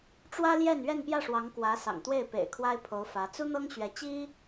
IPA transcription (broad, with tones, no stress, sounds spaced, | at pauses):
ʈ͡ʂ w ä˥ l j ɛ˥˧ n ɥ ɛ˥˧ n p j ä˥˩ ʂ w ɑ˧˥ ŋ k w ä˧˥ s ɑ̰˨˩ ŋ t̪ w e˥˩ ɪ̯ p ḛ˨˩ ɪ̯ kʰ w a˥ ɪ̯ pʰ o˧˥ ʊ̯ f ä˧˥ t͡s u˥ n̪ ɤ˥ ŋ ɕ ɥ ɛ˧˥ t͡ɕ i˥